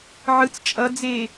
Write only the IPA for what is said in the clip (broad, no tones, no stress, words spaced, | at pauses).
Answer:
ʕɯt͡s t͡ʃʼʌd͡zeː